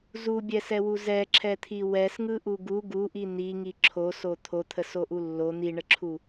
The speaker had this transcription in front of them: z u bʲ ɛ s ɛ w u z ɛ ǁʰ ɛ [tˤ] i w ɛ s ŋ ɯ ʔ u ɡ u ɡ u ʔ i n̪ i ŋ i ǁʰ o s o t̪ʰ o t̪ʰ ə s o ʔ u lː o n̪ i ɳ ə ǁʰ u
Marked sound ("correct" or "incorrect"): incorrect